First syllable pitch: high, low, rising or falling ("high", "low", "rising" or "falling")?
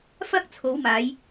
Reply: high